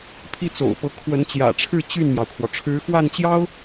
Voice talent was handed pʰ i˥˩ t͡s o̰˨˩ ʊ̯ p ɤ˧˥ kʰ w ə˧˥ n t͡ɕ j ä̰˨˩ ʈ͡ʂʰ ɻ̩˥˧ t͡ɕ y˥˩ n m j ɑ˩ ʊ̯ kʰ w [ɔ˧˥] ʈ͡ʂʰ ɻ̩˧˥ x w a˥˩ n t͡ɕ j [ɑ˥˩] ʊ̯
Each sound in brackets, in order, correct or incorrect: incorrect, incorrect

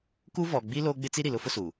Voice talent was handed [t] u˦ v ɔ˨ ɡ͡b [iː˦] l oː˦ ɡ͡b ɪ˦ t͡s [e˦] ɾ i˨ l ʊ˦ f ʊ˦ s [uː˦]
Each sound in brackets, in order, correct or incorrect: incorrect, incorrect, incorrect, incorrect

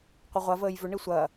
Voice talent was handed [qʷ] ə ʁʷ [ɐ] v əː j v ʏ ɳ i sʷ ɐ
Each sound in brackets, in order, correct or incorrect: correct, correct

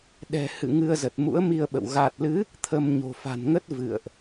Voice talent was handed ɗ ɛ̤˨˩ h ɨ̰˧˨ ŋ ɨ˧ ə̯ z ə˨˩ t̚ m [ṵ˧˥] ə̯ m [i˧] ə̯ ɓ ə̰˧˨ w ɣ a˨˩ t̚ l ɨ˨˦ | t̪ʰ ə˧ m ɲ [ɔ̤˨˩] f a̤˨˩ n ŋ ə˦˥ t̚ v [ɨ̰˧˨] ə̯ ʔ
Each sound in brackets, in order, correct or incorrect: correct, correct, incorrect, correct

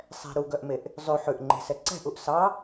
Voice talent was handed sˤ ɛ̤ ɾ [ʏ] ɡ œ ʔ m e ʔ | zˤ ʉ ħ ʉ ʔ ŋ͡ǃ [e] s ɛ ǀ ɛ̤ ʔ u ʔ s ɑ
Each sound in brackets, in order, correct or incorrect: incorrect, incorrect

